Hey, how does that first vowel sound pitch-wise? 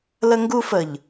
high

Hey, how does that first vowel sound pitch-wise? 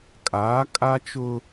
rising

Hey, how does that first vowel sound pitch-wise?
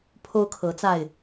high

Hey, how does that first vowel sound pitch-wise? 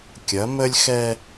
rising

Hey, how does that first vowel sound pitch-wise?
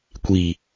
low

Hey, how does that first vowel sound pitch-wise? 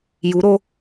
rising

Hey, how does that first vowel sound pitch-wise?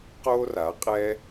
high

